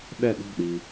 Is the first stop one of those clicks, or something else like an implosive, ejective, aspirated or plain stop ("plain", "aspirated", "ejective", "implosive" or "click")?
implosive